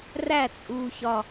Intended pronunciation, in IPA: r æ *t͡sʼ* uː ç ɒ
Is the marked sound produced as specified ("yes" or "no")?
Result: yes